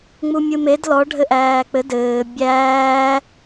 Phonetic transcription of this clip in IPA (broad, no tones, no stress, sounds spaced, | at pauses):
ŋ͡m u mʲ ɯ m e d l ɔ ɖʱ ɘ ʔ æː k͡p ɘ d ɘː bʲ æː